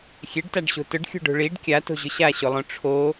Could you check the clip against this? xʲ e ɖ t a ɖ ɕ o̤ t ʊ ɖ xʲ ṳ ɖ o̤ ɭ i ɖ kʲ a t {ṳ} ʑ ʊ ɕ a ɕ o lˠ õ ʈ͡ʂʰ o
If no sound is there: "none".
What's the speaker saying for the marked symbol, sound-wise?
o̤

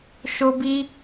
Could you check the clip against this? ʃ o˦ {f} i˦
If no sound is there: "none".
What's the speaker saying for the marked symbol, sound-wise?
b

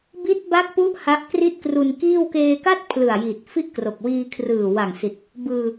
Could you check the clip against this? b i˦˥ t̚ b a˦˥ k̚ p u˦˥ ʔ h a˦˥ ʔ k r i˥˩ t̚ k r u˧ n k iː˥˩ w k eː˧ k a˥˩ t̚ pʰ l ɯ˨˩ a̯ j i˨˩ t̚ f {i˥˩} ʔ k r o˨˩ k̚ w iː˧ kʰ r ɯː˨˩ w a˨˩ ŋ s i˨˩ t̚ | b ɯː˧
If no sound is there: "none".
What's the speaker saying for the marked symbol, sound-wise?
i˥˩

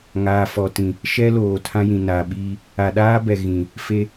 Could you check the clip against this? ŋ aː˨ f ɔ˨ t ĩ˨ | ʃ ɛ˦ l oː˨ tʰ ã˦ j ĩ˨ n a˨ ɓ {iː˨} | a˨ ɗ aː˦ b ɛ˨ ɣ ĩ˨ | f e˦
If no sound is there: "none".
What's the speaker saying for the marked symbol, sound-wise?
iː˦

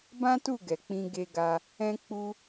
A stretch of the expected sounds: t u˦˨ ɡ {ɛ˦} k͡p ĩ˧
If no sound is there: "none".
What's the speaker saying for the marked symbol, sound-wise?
ɛ˨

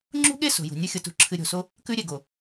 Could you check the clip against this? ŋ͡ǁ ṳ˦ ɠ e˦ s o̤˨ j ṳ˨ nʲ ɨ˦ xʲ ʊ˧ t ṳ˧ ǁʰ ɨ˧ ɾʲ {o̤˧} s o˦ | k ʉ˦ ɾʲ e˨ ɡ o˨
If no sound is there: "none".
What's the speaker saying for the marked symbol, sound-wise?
o̤˧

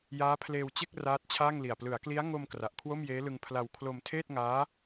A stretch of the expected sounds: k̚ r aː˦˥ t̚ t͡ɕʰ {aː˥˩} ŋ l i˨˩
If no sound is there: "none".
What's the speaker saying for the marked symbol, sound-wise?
aː˥˩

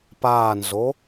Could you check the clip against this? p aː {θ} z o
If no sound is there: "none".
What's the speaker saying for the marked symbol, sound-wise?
n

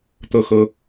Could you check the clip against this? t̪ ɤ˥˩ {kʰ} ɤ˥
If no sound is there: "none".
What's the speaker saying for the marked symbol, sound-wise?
x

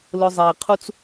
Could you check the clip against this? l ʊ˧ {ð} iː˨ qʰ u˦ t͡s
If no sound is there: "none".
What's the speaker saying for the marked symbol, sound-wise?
zˤ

